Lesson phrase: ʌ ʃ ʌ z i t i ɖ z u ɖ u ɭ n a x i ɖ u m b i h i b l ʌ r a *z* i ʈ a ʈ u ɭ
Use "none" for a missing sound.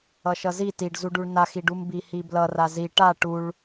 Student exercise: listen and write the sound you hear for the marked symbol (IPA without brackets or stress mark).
z